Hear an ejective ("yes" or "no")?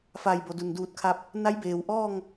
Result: no